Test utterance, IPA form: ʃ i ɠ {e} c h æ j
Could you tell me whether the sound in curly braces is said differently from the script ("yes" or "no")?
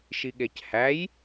no